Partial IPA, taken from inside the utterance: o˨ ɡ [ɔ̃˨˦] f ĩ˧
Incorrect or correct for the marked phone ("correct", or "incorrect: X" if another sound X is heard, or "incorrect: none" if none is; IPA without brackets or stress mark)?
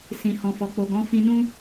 correct